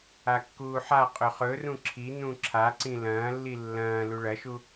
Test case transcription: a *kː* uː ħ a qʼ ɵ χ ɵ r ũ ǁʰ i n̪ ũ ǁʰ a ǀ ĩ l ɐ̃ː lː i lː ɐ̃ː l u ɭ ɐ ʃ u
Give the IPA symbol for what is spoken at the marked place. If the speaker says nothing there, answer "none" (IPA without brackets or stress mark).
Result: kː